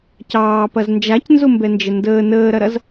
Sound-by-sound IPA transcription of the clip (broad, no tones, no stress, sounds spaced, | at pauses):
c ɑː p ɐ z n d͡ʒ a c n z ʊ m b ɛ n d͡ʒ ə n d əː n əː ɾ ɐ ɾ ɐ z